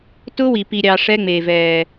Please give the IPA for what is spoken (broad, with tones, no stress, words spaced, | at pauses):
tʊ˦wi˨ pi˨ɾʲɑ˨ ʂɛ˦ŋ͡meː˨vɛː˨